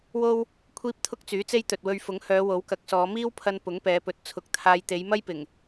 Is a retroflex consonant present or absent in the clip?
absent